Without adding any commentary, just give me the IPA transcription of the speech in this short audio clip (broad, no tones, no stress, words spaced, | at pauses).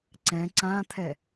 ǀɛ̃ ǀãt̪ʰɛ